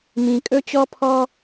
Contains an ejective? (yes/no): yes